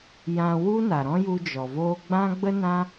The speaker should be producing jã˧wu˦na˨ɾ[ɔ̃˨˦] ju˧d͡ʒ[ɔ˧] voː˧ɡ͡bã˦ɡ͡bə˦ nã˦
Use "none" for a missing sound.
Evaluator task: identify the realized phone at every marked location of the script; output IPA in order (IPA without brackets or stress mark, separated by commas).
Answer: ɔ̃˦, ɔ˨